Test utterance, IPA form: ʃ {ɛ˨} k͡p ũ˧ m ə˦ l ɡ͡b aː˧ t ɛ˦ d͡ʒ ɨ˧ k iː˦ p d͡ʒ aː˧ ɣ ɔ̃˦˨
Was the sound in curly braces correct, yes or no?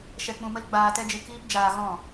no